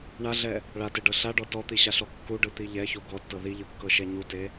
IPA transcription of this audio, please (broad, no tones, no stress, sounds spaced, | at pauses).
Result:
ɳ a ɮ ɛ | ɭ a t e ɖ ɤ ɬ a ɖ ɔ t ɔ t̪ i ɕ a ɬ ɔ kː u ɖ ɯ t̪ i ʎ ɛ ç o ɡ ɔ tː ɤ ð i ʎ ɯ kː ɤ ʃ ɛ ɲ u t e